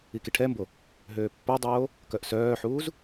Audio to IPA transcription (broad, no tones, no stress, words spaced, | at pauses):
ikiʈʰɛmbo | ɦøːpːodˤoː | kœʔsœːħuːz